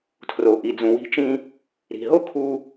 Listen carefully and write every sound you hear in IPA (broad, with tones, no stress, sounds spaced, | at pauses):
tʰ r o˩ ʔ i˩ d͡z ũ˩ w i̤˧ t͡ʃ ĩ˧ | ɾ i̤˩ ɦ o˥ kʰ u˧